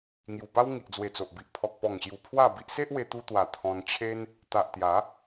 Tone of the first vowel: low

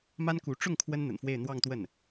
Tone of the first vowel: high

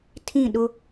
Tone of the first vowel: falling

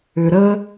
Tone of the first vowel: low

